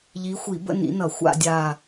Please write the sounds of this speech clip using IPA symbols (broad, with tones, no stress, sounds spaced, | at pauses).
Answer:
ʎ i˨˦ xʷ i˧˩˧ b ə̰˥˧ n ḭ˨˦ n ʌ˧˩˧ xʷ a̰˥˧ dʲ a˥˧